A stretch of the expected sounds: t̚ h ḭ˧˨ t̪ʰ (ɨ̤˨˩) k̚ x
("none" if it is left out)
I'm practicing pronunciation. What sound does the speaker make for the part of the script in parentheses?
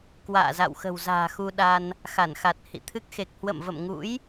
ɨ˦˥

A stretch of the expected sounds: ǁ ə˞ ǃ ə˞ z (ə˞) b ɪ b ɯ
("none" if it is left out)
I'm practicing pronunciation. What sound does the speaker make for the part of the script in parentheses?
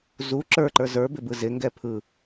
ə˞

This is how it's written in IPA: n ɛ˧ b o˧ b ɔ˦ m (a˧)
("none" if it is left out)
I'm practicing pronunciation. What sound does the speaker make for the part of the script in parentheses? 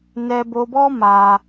a˧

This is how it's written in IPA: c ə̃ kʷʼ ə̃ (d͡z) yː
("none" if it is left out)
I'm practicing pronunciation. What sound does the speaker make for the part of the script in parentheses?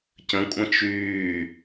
t͡ʃ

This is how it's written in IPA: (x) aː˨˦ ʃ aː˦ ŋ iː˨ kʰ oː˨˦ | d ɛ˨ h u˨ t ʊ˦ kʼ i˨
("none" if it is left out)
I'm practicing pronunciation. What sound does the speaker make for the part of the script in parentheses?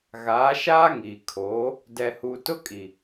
ɣ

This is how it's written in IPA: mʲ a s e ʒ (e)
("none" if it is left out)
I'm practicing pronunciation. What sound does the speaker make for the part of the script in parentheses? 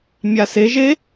e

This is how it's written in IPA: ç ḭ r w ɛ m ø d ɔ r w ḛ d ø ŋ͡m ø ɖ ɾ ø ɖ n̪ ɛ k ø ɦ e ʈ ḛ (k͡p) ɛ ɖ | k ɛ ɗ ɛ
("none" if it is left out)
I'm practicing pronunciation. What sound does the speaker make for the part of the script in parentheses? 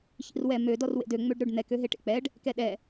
k͡p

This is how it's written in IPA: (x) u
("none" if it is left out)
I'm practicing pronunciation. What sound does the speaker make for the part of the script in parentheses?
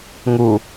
ŋ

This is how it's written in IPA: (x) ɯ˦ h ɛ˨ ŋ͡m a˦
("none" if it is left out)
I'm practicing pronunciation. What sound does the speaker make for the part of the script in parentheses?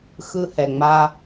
x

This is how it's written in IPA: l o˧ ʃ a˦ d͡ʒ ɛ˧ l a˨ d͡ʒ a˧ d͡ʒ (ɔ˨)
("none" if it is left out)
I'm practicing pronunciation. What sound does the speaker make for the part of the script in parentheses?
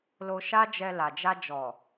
ɔ˨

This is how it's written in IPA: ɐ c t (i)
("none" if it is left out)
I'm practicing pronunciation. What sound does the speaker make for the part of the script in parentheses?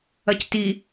i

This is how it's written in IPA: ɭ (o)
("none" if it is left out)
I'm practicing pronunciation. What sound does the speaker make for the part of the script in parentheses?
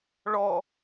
ɔ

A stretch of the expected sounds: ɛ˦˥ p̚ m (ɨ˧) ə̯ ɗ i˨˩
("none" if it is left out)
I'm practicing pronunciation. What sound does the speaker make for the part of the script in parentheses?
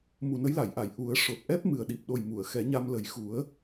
ɨ˨˩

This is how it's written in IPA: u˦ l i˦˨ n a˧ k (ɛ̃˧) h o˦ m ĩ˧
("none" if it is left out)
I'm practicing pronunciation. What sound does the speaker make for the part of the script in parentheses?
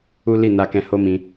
ɛ̃˧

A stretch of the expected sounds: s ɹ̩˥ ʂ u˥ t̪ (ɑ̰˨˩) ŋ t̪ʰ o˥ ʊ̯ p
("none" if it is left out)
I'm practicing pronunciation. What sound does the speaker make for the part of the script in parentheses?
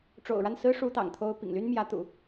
ɑ̰˨˩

